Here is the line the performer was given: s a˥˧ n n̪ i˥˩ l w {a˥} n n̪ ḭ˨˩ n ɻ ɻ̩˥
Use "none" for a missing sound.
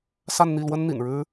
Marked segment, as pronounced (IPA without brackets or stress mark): ə˥